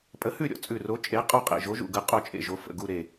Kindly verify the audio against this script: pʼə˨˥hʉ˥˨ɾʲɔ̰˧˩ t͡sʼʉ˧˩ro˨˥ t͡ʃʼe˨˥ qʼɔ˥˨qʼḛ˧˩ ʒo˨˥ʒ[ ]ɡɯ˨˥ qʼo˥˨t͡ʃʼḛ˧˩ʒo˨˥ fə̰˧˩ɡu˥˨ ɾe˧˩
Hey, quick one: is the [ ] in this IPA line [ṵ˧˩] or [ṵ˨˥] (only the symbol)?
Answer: ṵ˧˩